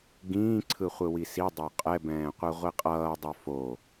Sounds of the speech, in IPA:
ɡĩːǀʰɯχʷɯwi sidˤo qʼɛbɛ̃ːqʷɯʁʷi qʼʌːdˤo fo

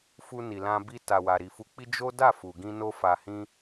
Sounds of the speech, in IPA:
fu˧ni˨lã˧ bi˧ ta˨wa˨ɾi˨ fu˧k͡pi˦ d͡ʒo˦ da˦˨fu˨ɡĩ˧ no˦fa˧hĩ˦

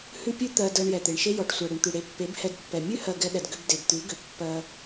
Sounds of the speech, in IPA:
hʉ˦pʲʉ˦ t̪ɜ˧dɜ˧ɳ jɛ˨t̪e˨ɳʃe˦ jɔ˨ʈ sʷɜ˨ɽʏ˨ɳt̪ʉ˨ ɽe˨ pːe˨˦bhɛ˧dpːɛ˨ mʲʉ˦hɜ˨ ɡɛ˧ɗɛ˨dɡʏ˧b de˨bt̪ʉ˨˦ɡʏ˨ pːɜ˧

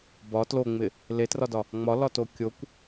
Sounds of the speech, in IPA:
bɒ tloŋ͡mɪ | letrɒdɒ | ŋ͡mɒlɒto kʲokʷ

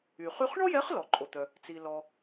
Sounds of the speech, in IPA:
y˩ χy˧χ ɳɔ˥jɛ˧˥χlɔ˩ ǃʼo˩t̪œ˩ | t͡si˩lɔ˩

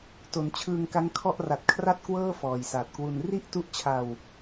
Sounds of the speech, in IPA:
to˩˦n t͡ɕʰɯː˧ŋka˦˥ŋkʰɔ˥˩ʔ ra˨˩t̚kʰra˥˩t̚kwɤː˥˩ fɔː˨˩jsaː˨˩t̚kwu˧n ri˥˩ʔtu˦˥ʔt͡ɕʰa˧w

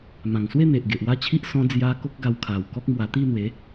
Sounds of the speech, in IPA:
mã˨˩ŋswe˥˧ n̪e˨ʔɡe˨ʔwa˥˧t͡ɕʰi˦ʔ sɔ̃˧d͡zja˧ ko˦k̚ɡa˧wkʰa˨˩wkɔ˦k̚ mwa˧ t̪i˥˧n̪we˨˦

